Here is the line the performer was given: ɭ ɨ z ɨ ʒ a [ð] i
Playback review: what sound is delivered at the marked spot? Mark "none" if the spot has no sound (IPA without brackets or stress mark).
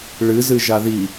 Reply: ð